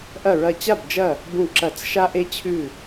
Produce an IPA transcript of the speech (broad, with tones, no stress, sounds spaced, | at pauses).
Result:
ʔ ɐ˧˩ ɹ ɐ˧˩ t͡ɕ a˥˨ b d͡ʒ ɐ˥˨ | b ũ˧˩ ǁ ɐ˨˩˦ t͡s ʃ a˧ ʔ e˧ t͡ɕʰ ʉ˥˨